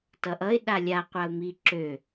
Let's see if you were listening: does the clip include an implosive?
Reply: yes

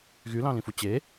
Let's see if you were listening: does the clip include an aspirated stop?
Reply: no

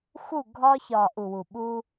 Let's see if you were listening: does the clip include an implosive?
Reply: yes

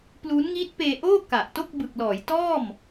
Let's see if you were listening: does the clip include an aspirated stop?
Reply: no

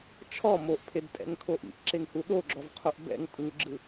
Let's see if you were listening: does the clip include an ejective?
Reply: yes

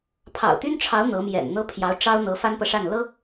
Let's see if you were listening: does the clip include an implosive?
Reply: no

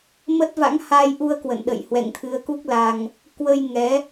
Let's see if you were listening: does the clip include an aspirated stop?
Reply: yes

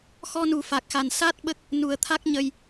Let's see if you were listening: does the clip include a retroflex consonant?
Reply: no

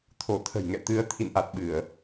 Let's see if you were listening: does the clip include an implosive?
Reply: yes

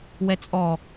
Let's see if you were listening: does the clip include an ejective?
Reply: yes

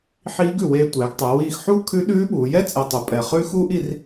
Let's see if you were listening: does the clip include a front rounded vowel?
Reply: no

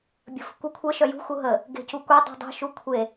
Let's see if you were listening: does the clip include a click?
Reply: no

